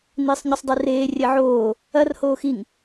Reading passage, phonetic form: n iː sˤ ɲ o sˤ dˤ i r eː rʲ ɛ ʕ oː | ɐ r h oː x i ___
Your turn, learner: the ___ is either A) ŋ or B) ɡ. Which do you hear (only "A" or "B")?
A